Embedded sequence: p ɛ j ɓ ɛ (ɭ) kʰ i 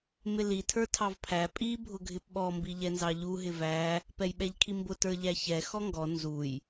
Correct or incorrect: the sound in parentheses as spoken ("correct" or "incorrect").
incorrect